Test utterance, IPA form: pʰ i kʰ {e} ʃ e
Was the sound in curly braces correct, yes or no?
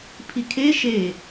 yes